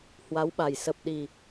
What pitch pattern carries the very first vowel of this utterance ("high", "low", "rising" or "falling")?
rising